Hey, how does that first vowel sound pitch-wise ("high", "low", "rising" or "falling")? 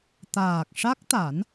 low